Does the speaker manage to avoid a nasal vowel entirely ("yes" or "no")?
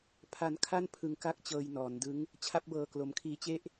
yes